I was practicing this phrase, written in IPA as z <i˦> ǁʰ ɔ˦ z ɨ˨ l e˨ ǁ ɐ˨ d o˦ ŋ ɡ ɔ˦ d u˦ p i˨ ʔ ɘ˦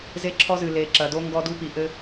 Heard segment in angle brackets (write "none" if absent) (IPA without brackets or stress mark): e˦